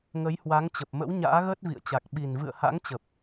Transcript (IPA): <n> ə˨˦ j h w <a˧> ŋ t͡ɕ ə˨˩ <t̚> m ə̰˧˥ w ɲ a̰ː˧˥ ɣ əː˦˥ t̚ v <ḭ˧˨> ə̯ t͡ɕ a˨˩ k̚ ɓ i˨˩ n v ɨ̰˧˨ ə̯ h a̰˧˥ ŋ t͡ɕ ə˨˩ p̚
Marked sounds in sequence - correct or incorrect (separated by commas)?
incorrect, incorrect, incorrect, correct